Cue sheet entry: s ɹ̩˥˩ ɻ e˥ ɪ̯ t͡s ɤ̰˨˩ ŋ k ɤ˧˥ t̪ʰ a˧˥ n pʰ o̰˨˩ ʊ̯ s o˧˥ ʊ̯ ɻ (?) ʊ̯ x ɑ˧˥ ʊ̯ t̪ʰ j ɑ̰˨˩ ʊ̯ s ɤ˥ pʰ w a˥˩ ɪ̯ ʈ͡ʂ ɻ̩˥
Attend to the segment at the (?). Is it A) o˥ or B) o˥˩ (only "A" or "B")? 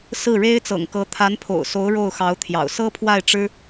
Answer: B